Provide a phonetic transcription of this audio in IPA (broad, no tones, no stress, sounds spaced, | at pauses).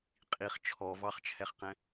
qʼ i χ t͡ʃʰ ɔ v ɑ χ t͡ʃʰ ɛ χ q ɛ̃